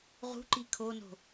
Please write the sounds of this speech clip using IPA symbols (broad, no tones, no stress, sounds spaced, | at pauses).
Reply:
ʁ ṳ ǃ i kʰ o n o̤